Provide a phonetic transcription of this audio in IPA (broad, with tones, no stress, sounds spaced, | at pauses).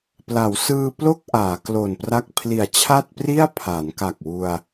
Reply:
p l a˩˦ w s ɯː˧ p l o˥˩ k̚ ʔ aː˩˦ k l o˨˩ n p r a˥˩ k̚ pʰ l i˨˩ a̯ t͡ɕʰ a˥˩ t̚ p r i˥˩ a̯ pʰ aː˩˦ n k a˨˩ k̚ w u˧ a̯